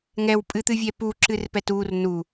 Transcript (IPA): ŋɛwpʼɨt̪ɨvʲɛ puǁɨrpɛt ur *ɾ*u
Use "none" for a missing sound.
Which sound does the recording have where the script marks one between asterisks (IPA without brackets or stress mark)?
n